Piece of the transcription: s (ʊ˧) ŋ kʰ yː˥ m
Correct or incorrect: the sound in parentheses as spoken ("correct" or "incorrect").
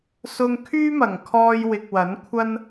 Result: correct